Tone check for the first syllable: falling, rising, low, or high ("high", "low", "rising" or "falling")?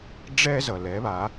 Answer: high